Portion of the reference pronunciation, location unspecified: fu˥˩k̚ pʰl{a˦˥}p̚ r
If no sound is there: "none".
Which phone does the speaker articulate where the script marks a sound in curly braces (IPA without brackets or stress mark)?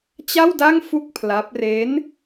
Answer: a˦˥